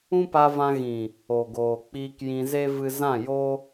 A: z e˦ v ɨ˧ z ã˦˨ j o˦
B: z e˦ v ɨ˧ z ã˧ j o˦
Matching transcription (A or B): A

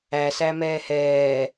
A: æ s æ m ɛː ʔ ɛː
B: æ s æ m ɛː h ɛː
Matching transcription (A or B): B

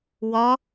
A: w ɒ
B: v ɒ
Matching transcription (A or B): A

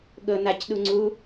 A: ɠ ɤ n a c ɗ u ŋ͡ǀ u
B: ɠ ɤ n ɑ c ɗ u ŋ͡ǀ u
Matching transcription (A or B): A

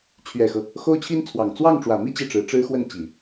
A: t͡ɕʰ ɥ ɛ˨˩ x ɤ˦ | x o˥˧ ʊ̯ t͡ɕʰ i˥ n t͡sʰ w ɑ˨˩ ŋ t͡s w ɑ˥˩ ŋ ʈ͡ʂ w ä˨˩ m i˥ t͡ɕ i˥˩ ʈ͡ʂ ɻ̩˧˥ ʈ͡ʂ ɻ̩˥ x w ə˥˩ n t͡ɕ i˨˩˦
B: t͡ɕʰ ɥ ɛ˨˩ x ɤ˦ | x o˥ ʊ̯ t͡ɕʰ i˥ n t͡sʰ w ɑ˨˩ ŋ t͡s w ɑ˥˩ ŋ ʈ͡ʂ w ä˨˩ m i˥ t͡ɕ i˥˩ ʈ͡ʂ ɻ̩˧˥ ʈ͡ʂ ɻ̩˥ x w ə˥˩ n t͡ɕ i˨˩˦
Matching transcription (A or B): B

